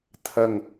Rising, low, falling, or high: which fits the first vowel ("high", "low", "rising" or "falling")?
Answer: low